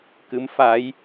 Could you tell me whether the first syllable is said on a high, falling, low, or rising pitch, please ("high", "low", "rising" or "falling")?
rising